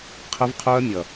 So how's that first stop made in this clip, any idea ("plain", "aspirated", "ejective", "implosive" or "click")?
aspirated